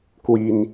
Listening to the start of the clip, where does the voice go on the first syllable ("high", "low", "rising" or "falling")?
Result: low